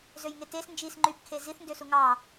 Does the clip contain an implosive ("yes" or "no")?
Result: no